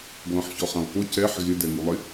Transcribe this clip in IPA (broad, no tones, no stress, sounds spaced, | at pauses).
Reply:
ɡ l ɔ̃ ħ ç ɔ χ ã lˠ k o c ɛ ħ ɣ ɪ d ɛ ŋ u lˠ ɪ